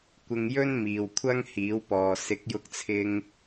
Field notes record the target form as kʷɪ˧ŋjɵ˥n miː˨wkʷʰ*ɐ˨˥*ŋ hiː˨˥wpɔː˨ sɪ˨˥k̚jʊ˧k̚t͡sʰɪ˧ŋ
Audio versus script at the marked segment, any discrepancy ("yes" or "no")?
yes